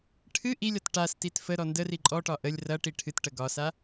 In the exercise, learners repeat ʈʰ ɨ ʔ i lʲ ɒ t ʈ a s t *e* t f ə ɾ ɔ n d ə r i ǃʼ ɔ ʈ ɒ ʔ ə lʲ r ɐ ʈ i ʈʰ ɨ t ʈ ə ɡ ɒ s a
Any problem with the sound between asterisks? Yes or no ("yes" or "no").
yes